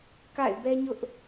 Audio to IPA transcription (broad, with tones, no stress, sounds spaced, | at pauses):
k a̰˦˨ ɪ̯ b ɛ˦ ɲ ʊ˦ ʔ